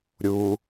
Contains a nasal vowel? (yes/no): no